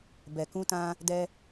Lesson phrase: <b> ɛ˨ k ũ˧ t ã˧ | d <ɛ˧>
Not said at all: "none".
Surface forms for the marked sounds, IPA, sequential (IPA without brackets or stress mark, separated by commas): b, ɛ˧